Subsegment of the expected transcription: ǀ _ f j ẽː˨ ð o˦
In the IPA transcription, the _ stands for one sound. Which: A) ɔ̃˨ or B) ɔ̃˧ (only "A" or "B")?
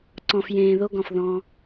A